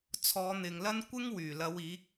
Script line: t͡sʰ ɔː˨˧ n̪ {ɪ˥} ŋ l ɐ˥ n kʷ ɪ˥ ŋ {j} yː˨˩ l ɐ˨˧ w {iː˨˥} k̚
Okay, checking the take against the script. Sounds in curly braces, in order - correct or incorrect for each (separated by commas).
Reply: incorrect, incorrect, correct